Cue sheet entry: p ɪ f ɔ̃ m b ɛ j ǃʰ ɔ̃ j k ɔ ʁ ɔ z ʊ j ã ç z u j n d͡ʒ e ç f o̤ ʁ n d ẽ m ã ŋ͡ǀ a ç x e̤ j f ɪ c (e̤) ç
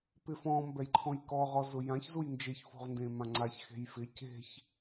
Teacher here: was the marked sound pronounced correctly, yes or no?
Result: yes